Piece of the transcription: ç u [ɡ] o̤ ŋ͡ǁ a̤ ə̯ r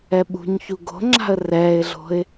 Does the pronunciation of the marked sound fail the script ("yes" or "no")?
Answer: no